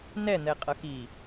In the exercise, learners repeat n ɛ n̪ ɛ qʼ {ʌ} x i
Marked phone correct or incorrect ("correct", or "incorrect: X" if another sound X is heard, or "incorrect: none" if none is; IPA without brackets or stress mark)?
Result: correct